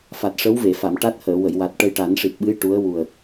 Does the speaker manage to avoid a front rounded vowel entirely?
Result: yes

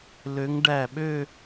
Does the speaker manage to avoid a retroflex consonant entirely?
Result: no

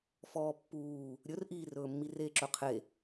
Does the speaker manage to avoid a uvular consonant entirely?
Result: no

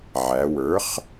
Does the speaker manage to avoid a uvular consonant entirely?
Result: no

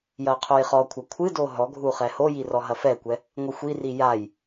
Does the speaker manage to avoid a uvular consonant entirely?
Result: no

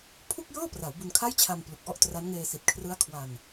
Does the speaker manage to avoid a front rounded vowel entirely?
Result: yes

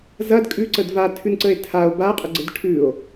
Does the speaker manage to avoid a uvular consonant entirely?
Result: no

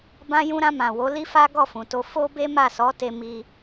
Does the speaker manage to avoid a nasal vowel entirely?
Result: no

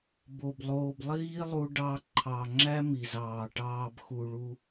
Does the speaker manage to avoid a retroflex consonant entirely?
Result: no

